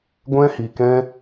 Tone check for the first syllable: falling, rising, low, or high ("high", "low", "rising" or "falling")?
high